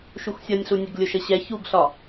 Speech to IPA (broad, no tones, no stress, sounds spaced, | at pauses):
ʃ u x sʲ ɒ nʲ ɬ u nʲ e ɡ lʲ o ʃ ə ɕ ɛ ç u ɡ ɬ ɒ